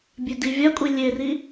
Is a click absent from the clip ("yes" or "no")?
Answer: yes